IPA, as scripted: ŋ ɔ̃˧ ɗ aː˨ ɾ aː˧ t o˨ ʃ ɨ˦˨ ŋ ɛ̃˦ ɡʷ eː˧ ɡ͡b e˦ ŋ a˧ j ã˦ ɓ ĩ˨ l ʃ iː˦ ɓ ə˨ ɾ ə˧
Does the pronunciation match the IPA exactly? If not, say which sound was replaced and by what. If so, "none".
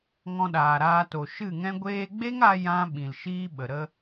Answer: none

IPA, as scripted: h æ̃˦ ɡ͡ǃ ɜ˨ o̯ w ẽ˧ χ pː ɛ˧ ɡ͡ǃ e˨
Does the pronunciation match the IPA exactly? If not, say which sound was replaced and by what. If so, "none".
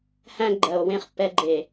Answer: none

